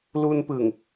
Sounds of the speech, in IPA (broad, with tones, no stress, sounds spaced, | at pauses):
l u˧ n p ɯ˨˩ ŋ